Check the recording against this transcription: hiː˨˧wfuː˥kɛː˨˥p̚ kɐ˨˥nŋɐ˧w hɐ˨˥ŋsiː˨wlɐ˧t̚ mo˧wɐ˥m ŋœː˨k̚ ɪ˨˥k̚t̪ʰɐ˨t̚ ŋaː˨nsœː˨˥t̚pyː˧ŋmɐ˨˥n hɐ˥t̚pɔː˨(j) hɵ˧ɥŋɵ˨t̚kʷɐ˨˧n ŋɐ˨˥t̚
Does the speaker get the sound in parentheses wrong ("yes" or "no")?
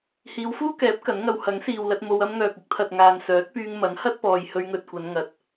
no